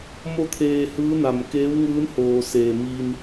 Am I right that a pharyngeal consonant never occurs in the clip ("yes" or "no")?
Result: yes